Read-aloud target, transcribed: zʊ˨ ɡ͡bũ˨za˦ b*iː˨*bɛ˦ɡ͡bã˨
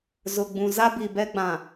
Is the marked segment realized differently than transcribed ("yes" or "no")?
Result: yes